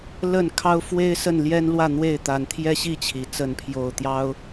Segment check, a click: absent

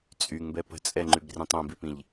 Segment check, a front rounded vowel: present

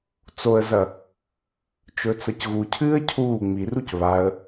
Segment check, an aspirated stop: present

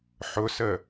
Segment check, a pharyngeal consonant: present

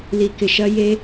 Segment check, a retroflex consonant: absent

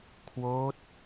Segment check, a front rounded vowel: absent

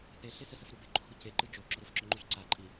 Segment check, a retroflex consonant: absent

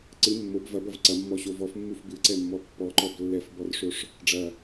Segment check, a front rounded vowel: absent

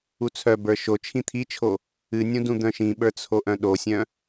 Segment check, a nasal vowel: present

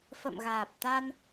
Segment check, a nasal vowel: absent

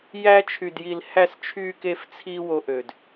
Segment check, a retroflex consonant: absent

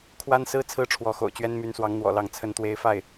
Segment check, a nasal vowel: absent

